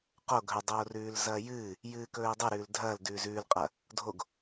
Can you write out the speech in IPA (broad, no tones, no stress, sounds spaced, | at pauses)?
q o ɡʱ ɵ dˤ oː r ʉː l z ɐː j ɨː | j ɨː k ɵː i̯ dˤ ʉ ɾ ʉː l dʱ ɐː l d ʉː z ʉː l qʼ ɐ | dʱ o ɡ